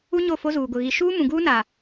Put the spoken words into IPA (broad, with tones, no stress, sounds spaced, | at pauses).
u˦ ɲ o˦˨ f o˦ z uː˨ ɡ ʊ˨ ɣ i˨ ʃ uː˦ m ũ˨ ɡ uː˦ n a˨